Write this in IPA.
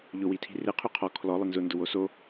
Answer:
ʎ ʊ w i tʰ i̤ r e qʰ y qʰ ɔ kʰ l ɔ lˠ ɪ n z ʊ n d ʊ w o s o

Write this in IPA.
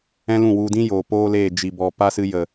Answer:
ɛ̃˦ l ũ˦˨ w u˧ d ĩ˦ j oː˨ p oː˦ l eː˦˨ d͡ʒ i˨ b ɔ˨ p a˦ s ɨ˧ j ə˨

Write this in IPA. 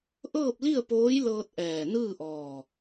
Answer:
ʔ ɤː˥˨ p̚ l i˥˨ ə̯ p oː˧˥ j l ɤː˧ t̚ ʔ ɛː˧˩ n ɯː˥˨ ʔ ɔː˧˩

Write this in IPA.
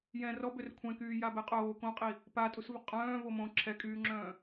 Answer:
j ɛ̃ r ɔ b ø r kʷʰ ɛ̃ k yː j a b ɛ qʼ oː k õ qʼ i | p a tʼ u s v ə qʼ œ̃ː v o m õ ǁʰ ɛ kʼ yː ŋ͡ǁ œ̃ː

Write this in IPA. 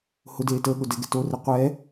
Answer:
h ʊ d eː t əː ɠ ʊ d ɛ ɡ ɛ t o r e qʷ ɛ

